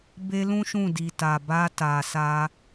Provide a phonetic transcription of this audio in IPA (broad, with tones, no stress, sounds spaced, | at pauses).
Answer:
b e˧ l ũ˦ ʃ ũ˦˨ d i˨ t a˨ b a˧ t a˨ s a˧